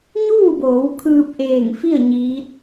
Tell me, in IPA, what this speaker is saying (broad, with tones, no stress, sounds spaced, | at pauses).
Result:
ɲ uː˥˨ b oː˩˧ w kʰ ɯː˧ p̚ ʔ eː˧˩ ŋ f i˥˨ ə̯ ɲ iː˧˥ t̚